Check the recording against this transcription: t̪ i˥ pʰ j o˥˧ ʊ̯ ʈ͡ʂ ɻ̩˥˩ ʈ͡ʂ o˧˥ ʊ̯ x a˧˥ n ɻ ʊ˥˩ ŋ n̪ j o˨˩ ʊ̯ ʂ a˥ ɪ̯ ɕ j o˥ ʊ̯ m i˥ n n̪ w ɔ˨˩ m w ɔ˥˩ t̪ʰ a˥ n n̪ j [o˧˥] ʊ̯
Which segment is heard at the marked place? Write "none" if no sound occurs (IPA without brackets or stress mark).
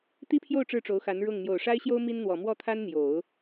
o˨˩˦